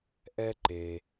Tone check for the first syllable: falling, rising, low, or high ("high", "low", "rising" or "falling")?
high